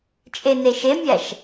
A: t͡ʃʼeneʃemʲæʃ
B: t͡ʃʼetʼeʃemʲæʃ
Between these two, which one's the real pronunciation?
A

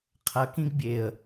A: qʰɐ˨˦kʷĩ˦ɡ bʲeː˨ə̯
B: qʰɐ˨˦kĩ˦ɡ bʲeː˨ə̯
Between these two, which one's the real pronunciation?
B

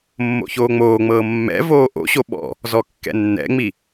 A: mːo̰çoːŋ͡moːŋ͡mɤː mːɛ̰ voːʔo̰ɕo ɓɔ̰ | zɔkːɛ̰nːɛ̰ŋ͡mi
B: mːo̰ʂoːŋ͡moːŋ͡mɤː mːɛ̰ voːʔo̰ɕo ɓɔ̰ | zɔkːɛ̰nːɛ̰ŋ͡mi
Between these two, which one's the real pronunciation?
A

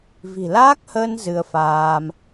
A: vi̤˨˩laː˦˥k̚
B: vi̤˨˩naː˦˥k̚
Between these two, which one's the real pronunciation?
A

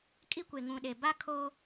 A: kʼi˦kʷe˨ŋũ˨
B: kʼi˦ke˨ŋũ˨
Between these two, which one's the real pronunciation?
A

